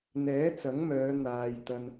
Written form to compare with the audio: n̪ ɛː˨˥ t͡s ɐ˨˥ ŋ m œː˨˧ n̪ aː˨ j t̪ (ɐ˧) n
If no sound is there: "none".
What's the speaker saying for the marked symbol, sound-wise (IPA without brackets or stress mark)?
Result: ɐ˧